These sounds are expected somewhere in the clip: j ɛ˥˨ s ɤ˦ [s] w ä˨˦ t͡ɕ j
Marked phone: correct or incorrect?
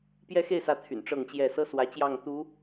correct